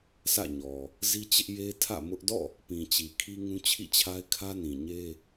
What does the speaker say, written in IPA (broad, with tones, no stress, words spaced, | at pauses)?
sʰä̰˦˨ɲɔ˨ | zi˦t͡ɕɪ˦ʔ je˦ tʰä̰˦˨mʊ˦ʔ dɔ̰˦˨ | pĩ˨t͡ɕi˨ kʰi˦ŋũ˦ t͡ɕʰḭ˦˨t͡ɕʰa˦ɪ̯kʰä˦ nĩ˨ɲe˦